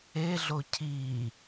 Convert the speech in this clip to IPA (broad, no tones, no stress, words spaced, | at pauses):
eɮo cʰi